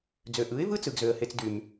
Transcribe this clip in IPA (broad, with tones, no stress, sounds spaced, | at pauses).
d͡z ø˨ ʔ ɯ˨˦ ɪ̯ v ɯ˦ t͡s ɯ˨ ɡ z ø˨ ə̯ h e˧ t͡s d y˨ m